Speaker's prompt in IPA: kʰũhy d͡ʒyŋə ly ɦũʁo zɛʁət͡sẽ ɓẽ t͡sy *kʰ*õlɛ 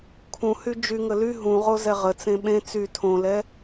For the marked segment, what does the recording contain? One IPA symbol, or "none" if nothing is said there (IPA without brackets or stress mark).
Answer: tʰ